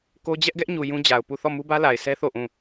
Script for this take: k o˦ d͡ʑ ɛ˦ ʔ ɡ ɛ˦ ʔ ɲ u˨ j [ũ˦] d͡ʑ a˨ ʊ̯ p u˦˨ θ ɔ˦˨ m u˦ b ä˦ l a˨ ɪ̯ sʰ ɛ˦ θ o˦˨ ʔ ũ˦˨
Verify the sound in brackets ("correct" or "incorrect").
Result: correct